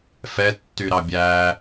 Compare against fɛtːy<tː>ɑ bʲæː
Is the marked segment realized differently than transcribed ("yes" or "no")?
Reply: yes